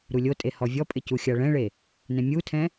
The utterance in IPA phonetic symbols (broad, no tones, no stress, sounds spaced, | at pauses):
ɾ u lʲ o tʼ e h ɔ vʲ ɔ pʼ ɪ c u xʲ a ɭ ɛ̃ ɭ e | n ɛ̃ mʲ u tʰ ɛ̃